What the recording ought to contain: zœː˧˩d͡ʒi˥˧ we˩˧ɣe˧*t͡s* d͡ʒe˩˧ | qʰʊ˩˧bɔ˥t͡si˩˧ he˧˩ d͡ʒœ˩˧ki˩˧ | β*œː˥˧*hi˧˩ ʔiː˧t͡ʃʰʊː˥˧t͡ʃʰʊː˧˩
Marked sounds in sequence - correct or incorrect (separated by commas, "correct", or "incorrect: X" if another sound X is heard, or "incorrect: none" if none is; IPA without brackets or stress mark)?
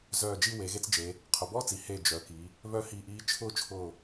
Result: correct, incorrect: œ˥˧